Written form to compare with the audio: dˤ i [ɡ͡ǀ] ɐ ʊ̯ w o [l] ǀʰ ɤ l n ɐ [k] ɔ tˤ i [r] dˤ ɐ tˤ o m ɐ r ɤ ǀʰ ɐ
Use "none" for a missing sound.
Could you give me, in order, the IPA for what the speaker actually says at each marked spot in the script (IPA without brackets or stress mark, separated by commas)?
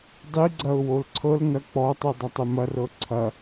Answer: ɡ͡ǀ, l, k͡p, none